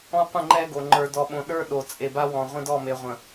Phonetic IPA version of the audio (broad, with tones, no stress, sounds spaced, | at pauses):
ɔ̃˦ qʷ ə̃˦˨ ŋ͡ǃ ɛ˦ ɡ o˨ ŋ͡ǃ ə˞˨ d ɔ˨ ɓ õ˨ ɗ ə˞˦ ɗ o˨ t͡sʼ e˨ b a˦ w ɔ̃˨ ʁʷ ə̃˦ d ɔ˦˨ m e˨ ʁʷ ə̃˨